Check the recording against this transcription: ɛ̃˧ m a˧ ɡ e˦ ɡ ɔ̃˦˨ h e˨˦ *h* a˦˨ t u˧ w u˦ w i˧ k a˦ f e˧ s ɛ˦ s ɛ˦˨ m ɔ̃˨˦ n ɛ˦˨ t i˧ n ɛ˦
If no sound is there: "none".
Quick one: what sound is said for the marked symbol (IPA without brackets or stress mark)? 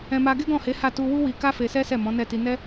h